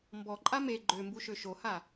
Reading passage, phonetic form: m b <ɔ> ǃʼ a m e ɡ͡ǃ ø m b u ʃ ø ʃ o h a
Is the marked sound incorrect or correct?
correct